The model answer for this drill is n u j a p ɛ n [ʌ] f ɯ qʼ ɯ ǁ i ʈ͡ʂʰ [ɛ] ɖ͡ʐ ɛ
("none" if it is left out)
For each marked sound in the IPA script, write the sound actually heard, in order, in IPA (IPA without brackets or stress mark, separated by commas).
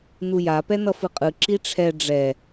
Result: ʌ, ɛ